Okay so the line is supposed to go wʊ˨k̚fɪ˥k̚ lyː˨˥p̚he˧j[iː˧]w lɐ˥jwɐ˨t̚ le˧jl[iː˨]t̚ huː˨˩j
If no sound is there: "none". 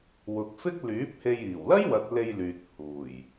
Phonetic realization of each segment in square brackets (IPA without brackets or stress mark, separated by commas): iː˨˩, yː˨